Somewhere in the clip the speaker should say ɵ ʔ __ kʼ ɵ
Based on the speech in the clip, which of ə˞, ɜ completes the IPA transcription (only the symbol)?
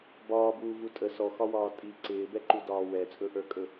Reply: ə˞